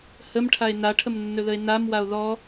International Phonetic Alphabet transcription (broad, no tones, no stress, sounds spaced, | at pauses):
h ə m ʈʰ a e̯ n a ʈʰ ə m nː ɵ ð ə e̯ n a m w a o̯ ð ɔ